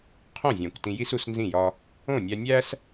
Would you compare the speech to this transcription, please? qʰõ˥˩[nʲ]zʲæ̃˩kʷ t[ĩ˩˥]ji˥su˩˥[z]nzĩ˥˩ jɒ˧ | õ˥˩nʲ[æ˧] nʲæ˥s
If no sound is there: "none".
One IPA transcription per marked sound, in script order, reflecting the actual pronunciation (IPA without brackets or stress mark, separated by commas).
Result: none, ĩ˧, s, æ˧